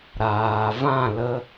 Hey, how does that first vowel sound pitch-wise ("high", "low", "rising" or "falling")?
low